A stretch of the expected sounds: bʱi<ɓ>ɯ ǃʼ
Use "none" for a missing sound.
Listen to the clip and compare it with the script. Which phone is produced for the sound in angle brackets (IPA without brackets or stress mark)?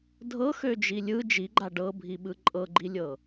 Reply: ɓ